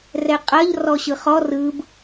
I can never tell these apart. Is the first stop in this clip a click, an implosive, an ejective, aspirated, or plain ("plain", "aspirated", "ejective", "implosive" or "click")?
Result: ejective